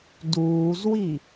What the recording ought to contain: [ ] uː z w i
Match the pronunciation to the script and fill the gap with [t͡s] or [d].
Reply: d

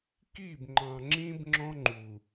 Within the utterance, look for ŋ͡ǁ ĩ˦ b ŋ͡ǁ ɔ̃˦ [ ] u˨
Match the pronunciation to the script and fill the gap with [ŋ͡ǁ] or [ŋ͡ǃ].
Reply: ŋ͡ǃ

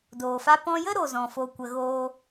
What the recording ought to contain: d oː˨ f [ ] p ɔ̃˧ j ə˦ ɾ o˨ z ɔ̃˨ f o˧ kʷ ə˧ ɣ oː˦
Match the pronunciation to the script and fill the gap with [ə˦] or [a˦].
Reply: a˦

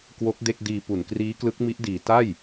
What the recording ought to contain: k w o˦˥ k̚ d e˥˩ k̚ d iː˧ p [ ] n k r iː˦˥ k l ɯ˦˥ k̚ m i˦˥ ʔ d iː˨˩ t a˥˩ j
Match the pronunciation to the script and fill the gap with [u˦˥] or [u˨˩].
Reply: u˨˩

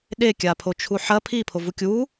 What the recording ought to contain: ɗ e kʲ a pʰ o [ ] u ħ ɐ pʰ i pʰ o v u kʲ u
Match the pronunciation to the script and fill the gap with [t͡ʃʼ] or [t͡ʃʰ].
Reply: t͡ʃʰ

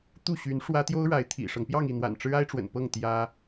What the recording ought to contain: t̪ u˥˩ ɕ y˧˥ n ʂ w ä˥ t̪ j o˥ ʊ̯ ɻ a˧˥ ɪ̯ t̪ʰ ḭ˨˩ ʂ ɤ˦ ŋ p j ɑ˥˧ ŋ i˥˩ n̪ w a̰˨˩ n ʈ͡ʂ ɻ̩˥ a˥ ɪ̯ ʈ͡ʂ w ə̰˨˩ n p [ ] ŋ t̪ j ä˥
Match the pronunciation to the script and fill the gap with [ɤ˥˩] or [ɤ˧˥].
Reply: ɤ˥˩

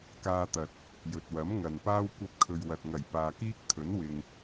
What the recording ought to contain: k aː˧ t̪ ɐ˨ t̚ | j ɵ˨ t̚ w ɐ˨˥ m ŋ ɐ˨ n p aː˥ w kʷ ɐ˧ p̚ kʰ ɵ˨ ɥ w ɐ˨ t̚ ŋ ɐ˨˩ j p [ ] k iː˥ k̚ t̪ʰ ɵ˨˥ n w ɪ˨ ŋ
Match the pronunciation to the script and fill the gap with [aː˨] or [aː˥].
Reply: aː˨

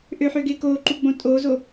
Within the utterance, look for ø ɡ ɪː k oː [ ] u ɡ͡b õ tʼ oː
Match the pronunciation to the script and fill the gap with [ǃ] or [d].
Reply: ǃ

